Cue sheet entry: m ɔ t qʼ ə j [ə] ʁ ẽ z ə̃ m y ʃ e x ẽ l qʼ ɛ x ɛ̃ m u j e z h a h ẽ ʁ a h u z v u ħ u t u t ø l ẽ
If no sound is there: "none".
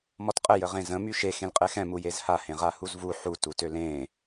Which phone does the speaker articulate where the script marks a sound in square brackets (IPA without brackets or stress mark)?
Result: ə